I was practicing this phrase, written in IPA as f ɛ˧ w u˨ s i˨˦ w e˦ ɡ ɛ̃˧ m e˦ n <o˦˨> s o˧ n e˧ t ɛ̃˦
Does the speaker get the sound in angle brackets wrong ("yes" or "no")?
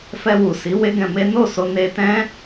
no